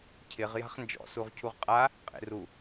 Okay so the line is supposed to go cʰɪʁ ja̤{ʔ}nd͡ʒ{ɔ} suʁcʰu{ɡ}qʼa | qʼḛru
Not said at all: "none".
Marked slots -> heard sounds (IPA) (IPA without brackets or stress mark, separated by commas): χ, ɔ̰, ʁ